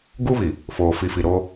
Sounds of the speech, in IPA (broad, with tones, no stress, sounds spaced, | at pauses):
ɡ u˦ β i˨ | f oː˨ f i˨ f i˨ ɾ oː˦